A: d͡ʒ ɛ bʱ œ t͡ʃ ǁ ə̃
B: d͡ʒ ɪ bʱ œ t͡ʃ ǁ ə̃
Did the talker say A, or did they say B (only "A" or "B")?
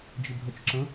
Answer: B